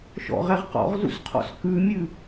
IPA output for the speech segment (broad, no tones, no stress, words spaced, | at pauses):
ʃɔ̰ʁɛʁ qɔ̰ʁzṵsqʰɔ̰s kʉmʲʉ